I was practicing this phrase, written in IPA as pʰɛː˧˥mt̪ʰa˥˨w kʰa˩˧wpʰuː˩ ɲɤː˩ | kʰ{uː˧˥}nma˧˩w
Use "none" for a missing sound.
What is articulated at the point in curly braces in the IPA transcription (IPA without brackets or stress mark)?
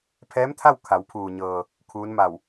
uː˧˥